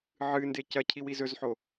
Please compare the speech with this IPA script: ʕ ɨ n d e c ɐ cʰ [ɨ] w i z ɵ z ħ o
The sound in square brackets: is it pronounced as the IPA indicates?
no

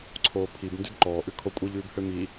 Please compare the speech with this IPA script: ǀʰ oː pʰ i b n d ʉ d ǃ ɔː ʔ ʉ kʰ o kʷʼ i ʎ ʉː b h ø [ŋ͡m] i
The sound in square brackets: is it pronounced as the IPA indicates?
no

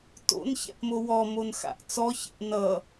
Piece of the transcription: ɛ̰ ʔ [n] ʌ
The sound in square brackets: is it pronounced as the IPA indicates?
yes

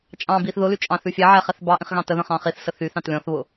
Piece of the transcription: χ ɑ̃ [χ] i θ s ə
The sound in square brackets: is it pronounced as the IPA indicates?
yes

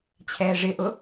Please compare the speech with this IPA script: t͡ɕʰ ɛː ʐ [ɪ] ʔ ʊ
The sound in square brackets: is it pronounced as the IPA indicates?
yes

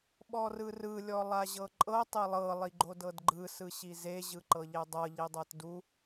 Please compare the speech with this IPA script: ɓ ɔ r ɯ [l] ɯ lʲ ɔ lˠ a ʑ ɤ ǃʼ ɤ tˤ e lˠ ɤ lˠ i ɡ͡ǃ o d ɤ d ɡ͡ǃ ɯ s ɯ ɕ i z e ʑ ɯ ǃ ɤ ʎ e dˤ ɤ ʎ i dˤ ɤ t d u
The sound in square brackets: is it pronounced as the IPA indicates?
no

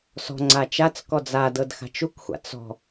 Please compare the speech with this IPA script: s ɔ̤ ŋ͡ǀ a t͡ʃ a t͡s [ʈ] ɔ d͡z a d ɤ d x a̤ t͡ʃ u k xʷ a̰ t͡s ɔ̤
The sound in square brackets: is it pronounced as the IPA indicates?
no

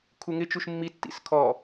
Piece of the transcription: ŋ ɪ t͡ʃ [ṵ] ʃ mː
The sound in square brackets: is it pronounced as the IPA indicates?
no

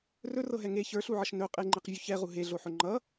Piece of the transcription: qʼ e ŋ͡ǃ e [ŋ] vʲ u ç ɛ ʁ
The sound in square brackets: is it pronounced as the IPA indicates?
no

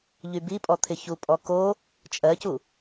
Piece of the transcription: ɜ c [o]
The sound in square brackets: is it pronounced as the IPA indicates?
no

